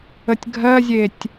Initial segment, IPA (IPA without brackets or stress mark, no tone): ə